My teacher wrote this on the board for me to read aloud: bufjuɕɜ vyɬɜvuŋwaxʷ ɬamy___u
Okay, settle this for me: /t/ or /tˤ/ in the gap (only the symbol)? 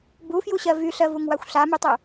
tˤ